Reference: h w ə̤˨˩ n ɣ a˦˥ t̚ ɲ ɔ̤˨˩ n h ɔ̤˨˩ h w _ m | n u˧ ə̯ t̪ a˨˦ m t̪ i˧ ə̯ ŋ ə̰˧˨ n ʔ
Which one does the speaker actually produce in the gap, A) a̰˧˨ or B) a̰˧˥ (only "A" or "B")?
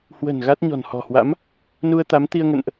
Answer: B